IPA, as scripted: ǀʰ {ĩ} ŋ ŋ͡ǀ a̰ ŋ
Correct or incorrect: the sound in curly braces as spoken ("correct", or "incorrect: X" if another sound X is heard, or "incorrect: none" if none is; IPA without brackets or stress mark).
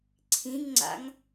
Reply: correct